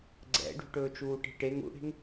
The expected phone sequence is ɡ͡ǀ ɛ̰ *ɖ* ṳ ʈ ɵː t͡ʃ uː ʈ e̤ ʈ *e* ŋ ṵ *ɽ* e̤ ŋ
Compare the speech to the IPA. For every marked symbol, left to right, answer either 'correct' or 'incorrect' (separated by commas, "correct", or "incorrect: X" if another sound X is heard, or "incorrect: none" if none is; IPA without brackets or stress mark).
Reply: correct, correct, correct